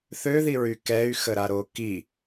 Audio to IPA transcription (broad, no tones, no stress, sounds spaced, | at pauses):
θ ø ð i ɹ y k ɛ y̯ x ə ɾ a ɾ o k i